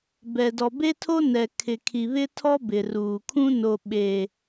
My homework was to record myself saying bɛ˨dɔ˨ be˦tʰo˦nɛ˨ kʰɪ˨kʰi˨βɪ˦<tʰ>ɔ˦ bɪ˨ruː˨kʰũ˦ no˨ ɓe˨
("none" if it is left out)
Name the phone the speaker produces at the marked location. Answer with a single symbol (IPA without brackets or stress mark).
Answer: tʰ